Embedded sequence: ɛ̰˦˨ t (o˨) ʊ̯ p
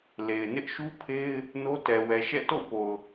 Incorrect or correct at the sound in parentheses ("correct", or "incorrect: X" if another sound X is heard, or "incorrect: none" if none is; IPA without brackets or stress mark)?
incorrect: o̰˦˨